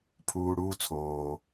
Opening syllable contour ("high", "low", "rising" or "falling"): low